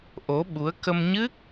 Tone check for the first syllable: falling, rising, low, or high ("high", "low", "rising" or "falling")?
rising